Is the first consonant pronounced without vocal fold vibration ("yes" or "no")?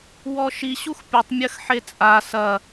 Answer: no